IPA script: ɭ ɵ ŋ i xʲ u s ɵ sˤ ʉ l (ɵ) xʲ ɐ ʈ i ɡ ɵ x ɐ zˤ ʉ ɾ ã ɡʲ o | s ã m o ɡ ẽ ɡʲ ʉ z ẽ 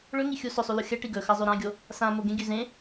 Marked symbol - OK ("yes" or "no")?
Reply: no